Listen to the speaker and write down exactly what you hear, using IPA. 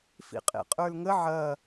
fḭqʼḛqʼə˞lŋə ʕɐ

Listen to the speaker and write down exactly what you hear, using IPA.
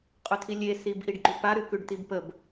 qʼʉt̪ʰilʲe sibʔiɖɡ͡ǃʉpa ɾʉkʉɖt̪ibpəb

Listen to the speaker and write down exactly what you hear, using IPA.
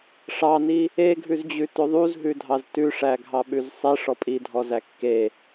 ʂɑni | eɡʱʉzd͡ʑʉ tɵðˤuzɦʉdʱɑz tʉʂæɡʱɑɓʉz sˤeʂ ɔpʼidʱɔzæ kːe

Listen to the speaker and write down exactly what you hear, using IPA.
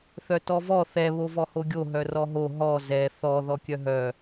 θœtɔvɔ θɛ βovɔhoɡʲo ɦœrɔɦo ɦɔ zɛ θɔ ðɔkʲœɦœ

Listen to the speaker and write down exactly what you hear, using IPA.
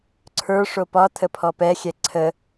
ǀʰə˞ʂo pɒtʰəpʰɔ pɛxʲɛ ǀʰə

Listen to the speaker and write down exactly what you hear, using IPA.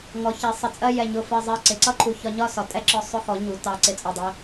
ŋɔ˩˧çɛ˩˧ sˤə˩˧t͡sʼɜ˧ jɛ˧˩ ɲʊ˧˩fɜ˧˩ zˤɜ˧˩ ǀɪ˩˧ǀʌ˥˧ǃʰu˧˩ çɒ˧ɲɒ˥˧sɒ˩˧ tʼɛ˥˧ǁɔ˧ sˤʊ˧xɔ˩˧ ɲu˩˧ tɑ˧˩ ǀɪ˧t͡sʼɔ˧˩dˤi˧

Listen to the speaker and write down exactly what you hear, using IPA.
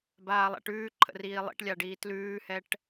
baːlˠæ̰ʈʉːǃʰə̰ riːlˠḭʈlʲaɖiː tlʉːhɛʈ

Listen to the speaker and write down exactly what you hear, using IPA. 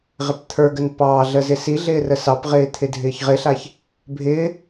ʁɪpt̪ʰə˞ɡən pɑɮə zɪsiɮɪː rəsɑpʁɪː t̪ʰɪdʱɪːçʁɪɬaç | bʱɪː

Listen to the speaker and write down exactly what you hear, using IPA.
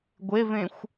ɡʷevẽxʷ

